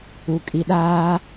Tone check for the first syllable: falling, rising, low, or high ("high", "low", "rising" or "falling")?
low